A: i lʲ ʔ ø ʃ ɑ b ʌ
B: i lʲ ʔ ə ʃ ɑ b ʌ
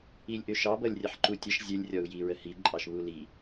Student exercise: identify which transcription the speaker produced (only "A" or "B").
A